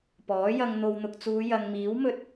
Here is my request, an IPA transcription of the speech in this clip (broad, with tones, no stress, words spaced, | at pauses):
pɔː˨˥jɐ˧ŋ n̪o˨wn̪ʊ˨k̚t͡suː˨˧ jɐ˨ŋmiː˨˥wmɵ˧t̚